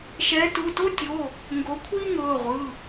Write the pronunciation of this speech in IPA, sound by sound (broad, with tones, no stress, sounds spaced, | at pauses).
ʃ ɛː˨˦ t u˩˧˩ t o˥ tʲ o˩˧˩ | ŋ ɡ o˨˦ kʷʰ iː˥ ŋ ɤː˩˧˩ ʁʷ ɯ˩˧˩